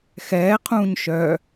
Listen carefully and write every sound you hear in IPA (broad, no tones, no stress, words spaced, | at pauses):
xɛː qʰũːɲʃœ